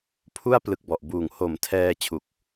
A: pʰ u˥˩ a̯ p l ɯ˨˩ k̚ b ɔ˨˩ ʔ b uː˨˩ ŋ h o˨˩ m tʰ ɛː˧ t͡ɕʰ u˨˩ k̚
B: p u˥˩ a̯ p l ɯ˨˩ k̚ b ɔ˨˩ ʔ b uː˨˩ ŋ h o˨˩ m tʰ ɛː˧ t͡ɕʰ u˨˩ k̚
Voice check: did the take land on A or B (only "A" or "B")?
A